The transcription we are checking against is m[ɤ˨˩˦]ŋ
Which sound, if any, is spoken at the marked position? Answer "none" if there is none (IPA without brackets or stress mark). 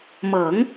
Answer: ɤ˨˩˦